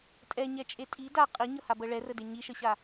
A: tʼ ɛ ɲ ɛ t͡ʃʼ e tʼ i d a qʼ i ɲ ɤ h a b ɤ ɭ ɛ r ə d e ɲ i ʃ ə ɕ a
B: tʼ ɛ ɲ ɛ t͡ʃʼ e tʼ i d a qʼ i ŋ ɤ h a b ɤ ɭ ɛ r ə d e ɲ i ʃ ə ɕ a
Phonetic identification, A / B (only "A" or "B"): A